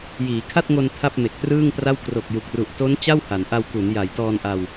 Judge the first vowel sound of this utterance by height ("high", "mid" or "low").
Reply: high